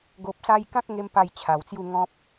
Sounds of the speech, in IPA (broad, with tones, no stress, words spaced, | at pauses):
ɡo˨p̚sa˧jkã˦k̚ ŋe˦m pa˥˧jt͡ɕʰa˨˩wt͡sju˥˧ ŋɔ̃˦p̚